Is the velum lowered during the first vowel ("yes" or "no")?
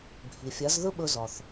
no